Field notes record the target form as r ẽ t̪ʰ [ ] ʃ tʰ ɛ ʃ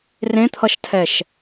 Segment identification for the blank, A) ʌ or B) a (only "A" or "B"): A